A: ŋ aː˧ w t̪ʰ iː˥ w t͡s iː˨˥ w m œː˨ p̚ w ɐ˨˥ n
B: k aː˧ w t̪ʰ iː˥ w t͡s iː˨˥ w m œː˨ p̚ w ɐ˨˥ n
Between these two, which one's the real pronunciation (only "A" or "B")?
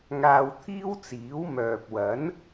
A